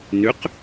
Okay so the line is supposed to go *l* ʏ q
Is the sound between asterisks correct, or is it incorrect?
incorrect